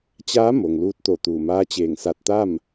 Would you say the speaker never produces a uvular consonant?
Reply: yes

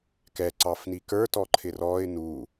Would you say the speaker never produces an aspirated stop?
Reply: no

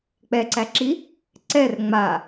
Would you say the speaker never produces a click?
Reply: no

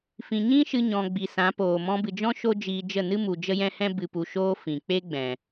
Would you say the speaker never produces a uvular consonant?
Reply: yes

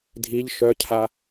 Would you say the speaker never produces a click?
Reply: yes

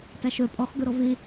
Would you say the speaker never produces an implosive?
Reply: yes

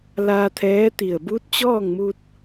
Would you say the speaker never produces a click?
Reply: yes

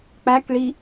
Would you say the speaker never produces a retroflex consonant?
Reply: no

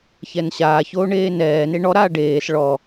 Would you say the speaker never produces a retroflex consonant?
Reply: no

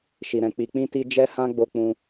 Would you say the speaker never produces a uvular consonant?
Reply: yes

